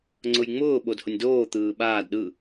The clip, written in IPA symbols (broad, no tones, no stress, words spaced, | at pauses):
ŋ͡ǀʊjŋ͡mʊː ɓodhʊnʲdoː t̪ɯːɓaːd ɗɯ